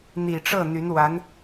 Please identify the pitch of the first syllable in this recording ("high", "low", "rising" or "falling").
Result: low